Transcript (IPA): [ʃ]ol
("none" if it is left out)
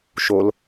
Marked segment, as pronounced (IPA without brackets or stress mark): ʃ